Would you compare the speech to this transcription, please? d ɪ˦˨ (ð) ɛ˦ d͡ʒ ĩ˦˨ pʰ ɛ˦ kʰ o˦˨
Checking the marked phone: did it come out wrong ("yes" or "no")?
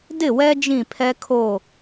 yes